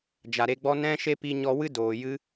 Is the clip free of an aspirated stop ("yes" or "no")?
yes